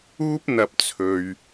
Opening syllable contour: high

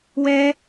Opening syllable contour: high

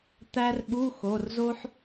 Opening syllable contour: high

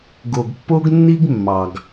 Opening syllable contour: low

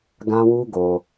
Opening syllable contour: high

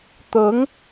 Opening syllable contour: rising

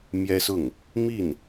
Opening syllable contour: high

